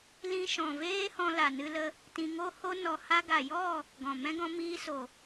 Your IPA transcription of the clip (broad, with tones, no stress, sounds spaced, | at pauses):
l ĩ˧ ʃ ɔ̃˨ v eː˦ h ɔ̃˧ l a˨ n ɨ˧ l ə˧ | t ĩ˧ ŋ o˦ h o˦ n ɔ˧ h a˧ ɡ a˨ j ɔ˦˨ | ɡ ɔ̃˨ m ɛ̃˦ ɡ ɔ̃˧ m iː˧ s o˨